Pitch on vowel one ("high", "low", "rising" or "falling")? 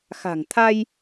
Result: low